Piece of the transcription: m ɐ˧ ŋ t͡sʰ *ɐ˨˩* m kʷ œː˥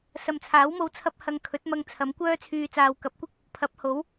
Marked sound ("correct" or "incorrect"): incorrect